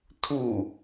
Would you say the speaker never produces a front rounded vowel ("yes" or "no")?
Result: yes